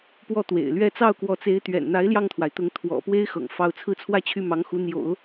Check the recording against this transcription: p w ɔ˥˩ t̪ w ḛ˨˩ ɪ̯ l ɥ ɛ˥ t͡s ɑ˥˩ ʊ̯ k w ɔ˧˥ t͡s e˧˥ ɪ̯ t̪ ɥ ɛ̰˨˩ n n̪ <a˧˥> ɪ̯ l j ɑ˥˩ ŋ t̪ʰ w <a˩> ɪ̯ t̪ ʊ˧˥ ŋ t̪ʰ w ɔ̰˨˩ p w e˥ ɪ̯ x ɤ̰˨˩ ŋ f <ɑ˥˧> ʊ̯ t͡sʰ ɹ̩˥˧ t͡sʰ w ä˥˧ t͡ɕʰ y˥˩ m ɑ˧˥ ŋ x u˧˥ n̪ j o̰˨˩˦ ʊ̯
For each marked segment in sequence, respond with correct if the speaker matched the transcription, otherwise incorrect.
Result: correct, correct, correct

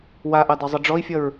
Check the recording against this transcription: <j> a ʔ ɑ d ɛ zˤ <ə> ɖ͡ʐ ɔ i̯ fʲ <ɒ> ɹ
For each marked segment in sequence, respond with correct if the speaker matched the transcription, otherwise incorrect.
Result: incorrect: w, correct, incorrect: ʌ

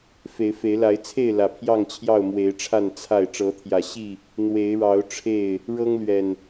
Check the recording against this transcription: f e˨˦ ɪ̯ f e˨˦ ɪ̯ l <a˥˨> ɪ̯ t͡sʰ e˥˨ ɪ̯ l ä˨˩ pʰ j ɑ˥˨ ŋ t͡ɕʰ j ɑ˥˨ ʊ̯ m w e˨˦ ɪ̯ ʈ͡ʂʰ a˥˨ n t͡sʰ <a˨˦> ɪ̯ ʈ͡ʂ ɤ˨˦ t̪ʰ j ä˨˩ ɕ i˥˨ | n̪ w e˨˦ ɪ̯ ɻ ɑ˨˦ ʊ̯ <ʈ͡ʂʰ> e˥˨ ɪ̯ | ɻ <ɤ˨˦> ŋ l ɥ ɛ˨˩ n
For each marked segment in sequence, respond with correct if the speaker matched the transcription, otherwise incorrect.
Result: incorrect: a˨˦, incorrect: a˥˨, correct, incorrect: ɤ˦

